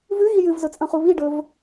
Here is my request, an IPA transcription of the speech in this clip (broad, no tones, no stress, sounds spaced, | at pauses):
v ʉ ɣ i j ɨ v z ɵ t͡sʼ ɐ̃ χ u β i ɖ ɵ v